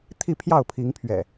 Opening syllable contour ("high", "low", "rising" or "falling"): falling